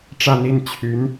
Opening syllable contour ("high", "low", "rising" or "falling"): falling